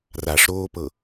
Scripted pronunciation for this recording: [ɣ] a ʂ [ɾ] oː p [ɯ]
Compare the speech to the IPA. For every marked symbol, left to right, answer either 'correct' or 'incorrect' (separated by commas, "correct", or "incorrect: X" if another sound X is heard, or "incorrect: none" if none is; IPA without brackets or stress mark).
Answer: incorrect: r, correct, incorrect: ɤ